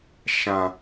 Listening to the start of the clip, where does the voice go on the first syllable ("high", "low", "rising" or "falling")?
low